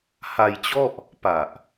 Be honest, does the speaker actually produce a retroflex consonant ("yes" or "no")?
no